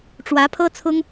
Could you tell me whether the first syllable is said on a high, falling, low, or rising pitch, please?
rising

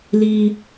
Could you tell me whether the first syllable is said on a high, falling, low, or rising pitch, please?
high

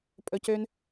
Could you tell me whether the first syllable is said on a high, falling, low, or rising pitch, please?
low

